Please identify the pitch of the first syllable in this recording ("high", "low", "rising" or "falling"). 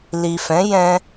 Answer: low